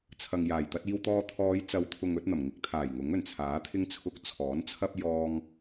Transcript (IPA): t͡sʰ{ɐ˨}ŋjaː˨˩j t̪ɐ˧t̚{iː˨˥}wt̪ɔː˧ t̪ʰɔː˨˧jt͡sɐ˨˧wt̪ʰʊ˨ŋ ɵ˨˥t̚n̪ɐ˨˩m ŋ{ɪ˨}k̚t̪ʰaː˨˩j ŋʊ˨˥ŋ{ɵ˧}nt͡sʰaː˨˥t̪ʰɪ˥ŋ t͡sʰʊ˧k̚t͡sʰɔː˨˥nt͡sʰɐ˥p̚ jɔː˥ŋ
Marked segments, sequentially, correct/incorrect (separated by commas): correct, incorrect, correct, incorrect